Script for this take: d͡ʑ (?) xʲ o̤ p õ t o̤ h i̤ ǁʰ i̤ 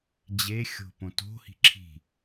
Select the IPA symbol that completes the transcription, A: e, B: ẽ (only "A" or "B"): A